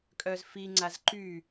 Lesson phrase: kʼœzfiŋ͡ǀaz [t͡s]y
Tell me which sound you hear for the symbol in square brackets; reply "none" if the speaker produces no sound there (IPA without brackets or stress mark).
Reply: ǃ